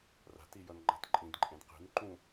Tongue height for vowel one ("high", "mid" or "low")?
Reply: low